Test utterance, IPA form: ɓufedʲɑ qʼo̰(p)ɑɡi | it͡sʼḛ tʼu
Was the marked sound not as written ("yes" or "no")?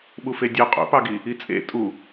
no